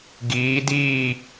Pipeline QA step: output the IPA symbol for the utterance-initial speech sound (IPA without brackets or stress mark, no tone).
ɡ